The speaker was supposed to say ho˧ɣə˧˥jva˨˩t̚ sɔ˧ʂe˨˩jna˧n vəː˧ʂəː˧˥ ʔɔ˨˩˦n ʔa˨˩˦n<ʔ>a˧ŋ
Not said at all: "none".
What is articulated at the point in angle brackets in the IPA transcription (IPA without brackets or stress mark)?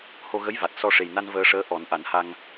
h